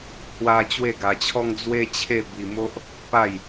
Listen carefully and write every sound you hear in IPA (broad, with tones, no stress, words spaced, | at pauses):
hwa˦ t͡ɕwe˥˧ɡa˧t͡ɕʰɔ˦ŋ d͡zwe˦t͡ɕʰe˥˧ bi˧mo˦ʔ | pa˥˧j